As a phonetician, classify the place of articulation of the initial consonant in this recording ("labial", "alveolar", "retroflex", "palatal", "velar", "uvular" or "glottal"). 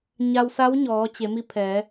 palatal